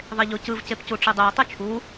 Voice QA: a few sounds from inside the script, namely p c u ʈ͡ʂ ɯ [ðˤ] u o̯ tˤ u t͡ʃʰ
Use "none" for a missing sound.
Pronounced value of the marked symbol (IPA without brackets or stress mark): dˤ